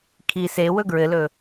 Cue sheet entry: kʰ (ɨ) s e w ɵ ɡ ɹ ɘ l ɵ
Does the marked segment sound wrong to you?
yes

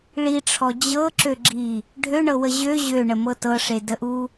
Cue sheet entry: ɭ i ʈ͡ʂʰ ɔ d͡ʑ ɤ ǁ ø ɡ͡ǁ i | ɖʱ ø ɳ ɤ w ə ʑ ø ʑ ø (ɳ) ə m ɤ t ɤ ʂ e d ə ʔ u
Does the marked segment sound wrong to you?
no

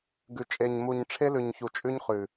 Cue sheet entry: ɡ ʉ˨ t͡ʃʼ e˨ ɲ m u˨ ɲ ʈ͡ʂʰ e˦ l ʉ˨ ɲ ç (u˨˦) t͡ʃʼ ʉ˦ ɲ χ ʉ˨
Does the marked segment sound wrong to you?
yes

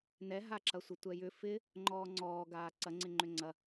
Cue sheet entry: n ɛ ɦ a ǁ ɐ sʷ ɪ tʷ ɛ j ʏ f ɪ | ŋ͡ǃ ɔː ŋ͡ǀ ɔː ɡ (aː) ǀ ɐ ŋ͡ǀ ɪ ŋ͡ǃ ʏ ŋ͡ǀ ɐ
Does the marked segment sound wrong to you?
no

